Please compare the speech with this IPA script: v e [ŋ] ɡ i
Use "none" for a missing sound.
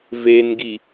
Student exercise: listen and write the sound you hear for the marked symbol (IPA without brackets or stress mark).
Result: n